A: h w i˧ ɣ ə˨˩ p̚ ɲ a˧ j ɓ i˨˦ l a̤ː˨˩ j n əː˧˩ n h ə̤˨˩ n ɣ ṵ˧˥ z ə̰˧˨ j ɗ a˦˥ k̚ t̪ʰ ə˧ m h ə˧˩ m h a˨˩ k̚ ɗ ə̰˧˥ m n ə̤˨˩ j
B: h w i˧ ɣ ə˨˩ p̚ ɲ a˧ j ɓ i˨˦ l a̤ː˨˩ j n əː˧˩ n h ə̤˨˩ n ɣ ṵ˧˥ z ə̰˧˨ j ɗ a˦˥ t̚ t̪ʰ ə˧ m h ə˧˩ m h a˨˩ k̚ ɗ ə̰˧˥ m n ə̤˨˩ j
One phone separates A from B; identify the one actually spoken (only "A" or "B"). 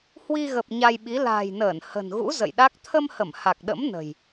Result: A